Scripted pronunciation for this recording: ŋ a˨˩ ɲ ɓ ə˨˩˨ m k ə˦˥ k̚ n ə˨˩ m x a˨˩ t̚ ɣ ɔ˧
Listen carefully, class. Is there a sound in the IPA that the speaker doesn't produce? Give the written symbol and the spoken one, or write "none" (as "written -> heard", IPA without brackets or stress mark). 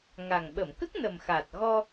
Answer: ɲ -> ŋ